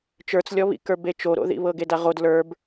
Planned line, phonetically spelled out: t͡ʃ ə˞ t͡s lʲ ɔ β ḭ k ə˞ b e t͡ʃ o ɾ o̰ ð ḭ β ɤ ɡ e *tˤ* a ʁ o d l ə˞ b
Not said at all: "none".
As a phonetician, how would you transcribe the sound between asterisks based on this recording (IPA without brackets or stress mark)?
d